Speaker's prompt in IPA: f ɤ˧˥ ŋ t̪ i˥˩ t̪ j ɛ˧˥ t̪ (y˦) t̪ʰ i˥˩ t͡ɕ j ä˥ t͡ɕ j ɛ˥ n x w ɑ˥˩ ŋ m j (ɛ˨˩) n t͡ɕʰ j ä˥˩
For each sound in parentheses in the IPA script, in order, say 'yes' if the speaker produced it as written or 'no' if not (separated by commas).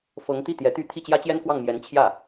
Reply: no, no